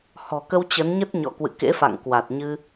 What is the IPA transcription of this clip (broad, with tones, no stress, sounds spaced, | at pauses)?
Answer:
h ɔ̤˨˩ k ə˧ w t͡ɕ ə˨˦ n ɲ ə˦˥ t̚ ɲ ɔ̰˧˨ k w ɨ̰˧˨ k ḛ˧˥ f a̰˧˨ ŋ k w a˨˩ t̚ ɲ ɨ˧